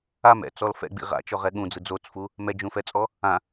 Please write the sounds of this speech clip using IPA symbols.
amɛ̰t͡sɔl fɛ̰ɡ͡bḭ ʁa̰t͡ʃɔʁɛ ɠũd͡zɯ d͡zot͡sfu | mɛd͡ʒũfɛt͡sʼɔ | ã

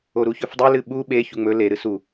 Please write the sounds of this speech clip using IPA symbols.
oɾuçɵfdˤe lɨɓu ɓe çuŋ͡mɵ le ɾɨsu

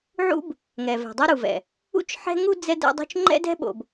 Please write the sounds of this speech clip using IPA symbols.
ʕṵ˦b | ŋɛ˨vɛ̤˨dˤɛ˦ ɾu˨vɛ̰˨ | ṵ˦t͡ʃħɛ̤˦ŋu˦ d͡zɛ˦ dɛ̰˦dˤṳ˦t͡ʃ ŋ͡ǃɛ̰˦dɛ̤˦ɓo̰˨b

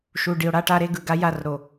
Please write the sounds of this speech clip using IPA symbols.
ʃu˨ ɖi˨o̯ɽa˦ʈa˦ɾe˦ ɡɯ˨ɡa˦ ja˦˨rɾo˨

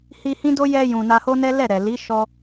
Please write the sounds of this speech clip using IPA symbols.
hi˧hĩ˦do˦ jɛ˧jũ˨ na˧ho˦nɛ˦ lɛ˦˨ ɾɛ˨ li˨˦ ʃɔ˧

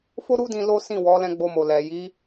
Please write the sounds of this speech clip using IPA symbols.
fo˦ɾu˦dĩ˧ lo˦ sĩ˦˨wɔ˨˦ lɛ̃˧ɡ͡bo˧mo˨ lɛ˨ ji˨˦

